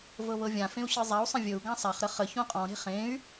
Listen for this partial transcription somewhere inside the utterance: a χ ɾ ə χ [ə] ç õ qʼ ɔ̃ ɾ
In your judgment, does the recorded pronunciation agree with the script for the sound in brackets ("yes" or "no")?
yes